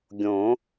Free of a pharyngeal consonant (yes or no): yes